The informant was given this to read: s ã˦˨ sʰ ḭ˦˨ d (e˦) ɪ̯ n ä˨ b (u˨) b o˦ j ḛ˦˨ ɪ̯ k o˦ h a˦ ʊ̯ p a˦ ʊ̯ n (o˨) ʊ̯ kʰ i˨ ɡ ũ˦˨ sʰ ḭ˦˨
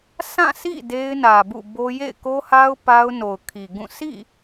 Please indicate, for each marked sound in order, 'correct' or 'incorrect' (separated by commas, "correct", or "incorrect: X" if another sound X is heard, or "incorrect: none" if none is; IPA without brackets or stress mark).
correct, incorrect: ṵ˦˨, correct